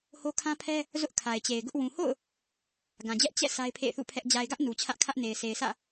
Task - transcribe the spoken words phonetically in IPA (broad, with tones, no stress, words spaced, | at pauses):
ho˦kʰã˦pʰɛ˦ | zʊ˦ʔkʰa˨ɪ̯t͡ɕe˨ɪ̯ɡʊ˦ʔ wũ˨ho̰˦˨ʊ̯ | ɡã˨d͡ʑɛ˦ʔ t͡ɕɛ̰˦˨ sʰa˦ɪ̯pʰḛ˦˨ɪ̯θṵ˦˨pʰɛ˦ʔ d͡ʑa˨ɪ̯ɡä˦ʔ nu˨ t͡ɕʰä˦ʔkʰä˦ʔ ne˨ɪ̯sʰe˨ɪ̯sʰä̰˦˨